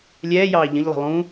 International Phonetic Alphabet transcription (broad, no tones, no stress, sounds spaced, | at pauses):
lʲ ɛː j ɑː ʎ ə̃ ʎ lˠ i̤ lˠ ũ